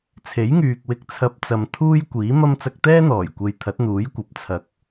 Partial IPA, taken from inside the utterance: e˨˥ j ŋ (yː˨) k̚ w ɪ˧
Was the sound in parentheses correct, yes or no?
yes